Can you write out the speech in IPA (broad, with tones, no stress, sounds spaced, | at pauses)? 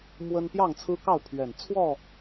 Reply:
m w ə˦ n p j ɑ˥˨ ŋ t͡sʰ ɹ̩˦ k ɑ˥˨ ʊ̯ pʰ ɥ ɛ˨˩ n t͡sʰ w ɔ˥˨